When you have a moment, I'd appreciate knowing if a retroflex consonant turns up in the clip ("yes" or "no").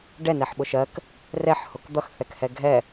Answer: yes